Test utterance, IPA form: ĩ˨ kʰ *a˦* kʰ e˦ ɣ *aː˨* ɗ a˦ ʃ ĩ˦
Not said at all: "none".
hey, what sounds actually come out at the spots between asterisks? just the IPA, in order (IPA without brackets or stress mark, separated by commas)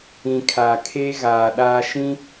a˨, aː˨